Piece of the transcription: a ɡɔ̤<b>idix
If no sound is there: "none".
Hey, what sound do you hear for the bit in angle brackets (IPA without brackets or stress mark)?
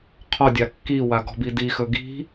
b